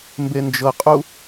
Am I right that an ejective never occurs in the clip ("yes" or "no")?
no